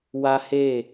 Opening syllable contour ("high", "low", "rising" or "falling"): high